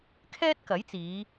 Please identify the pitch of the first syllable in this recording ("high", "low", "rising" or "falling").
high